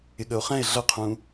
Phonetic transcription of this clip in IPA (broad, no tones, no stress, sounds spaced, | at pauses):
ɪ ɠ ə o̯ χ ɛ̃ e̯ ɮ ʌ qʰ ũ